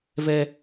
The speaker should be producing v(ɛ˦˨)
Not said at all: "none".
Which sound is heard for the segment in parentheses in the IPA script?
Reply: ɛ˦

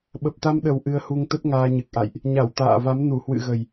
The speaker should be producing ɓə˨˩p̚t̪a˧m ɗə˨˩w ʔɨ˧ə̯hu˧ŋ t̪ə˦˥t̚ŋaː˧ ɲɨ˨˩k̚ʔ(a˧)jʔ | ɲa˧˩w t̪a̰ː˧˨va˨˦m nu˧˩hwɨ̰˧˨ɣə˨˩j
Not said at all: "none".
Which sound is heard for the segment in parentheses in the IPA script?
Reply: a̰˧˨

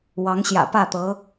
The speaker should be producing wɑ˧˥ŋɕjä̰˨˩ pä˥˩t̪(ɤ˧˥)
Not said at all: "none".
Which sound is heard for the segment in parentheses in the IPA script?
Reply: ɤ˧˥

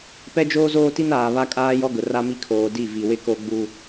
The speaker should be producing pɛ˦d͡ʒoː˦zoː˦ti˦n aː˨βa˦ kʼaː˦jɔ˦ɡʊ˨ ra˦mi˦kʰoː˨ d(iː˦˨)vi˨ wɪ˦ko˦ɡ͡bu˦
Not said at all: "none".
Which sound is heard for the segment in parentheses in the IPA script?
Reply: i˦˨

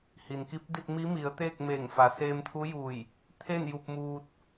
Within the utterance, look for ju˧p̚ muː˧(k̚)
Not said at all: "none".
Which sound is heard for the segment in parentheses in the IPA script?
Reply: t̚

